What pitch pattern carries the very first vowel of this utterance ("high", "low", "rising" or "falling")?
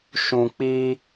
low